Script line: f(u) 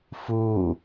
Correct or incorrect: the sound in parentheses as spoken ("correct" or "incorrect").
incorrect